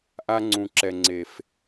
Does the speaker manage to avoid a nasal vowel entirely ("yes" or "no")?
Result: no